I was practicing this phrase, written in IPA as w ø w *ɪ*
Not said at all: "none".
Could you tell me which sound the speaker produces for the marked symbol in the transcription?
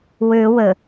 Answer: ə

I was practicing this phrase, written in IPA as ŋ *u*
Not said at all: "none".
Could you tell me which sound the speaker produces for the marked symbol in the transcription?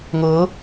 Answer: ʊ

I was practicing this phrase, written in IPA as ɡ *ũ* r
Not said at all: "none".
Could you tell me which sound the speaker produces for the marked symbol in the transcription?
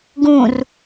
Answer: ũ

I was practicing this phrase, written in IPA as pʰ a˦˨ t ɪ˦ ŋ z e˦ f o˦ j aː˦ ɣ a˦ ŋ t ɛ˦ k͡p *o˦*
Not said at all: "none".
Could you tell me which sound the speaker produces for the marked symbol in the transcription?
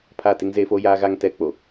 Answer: o˨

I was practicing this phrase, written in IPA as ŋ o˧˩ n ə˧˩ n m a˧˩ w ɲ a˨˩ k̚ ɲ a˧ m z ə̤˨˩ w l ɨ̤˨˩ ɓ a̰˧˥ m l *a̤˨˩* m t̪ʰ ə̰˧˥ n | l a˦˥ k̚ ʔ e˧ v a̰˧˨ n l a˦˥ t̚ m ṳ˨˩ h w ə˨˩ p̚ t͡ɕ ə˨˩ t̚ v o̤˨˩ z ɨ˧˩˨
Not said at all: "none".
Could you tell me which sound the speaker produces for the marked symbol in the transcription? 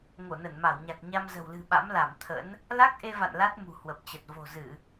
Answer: a˧˩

